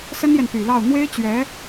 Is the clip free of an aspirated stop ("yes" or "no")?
yes